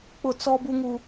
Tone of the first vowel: falling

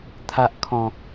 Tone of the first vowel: low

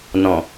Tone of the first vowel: low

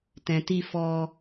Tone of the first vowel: low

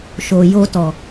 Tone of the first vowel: low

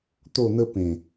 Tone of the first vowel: falling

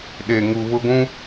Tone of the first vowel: low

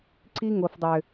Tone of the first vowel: high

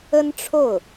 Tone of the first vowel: high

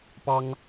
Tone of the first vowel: high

